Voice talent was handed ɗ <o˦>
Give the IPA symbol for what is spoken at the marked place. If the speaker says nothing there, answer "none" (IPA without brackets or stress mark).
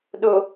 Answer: o˨